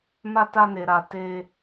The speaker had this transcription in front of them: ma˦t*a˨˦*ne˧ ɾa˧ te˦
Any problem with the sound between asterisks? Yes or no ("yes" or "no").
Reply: yes